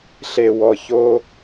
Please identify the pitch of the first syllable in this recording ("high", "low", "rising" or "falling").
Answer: low